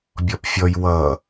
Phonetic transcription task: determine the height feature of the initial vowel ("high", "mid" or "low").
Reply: mid